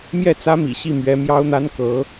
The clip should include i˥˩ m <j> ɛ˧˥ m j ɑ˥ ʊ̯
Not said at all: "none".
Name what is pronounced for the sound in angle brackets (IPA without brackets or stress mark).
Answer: ɥ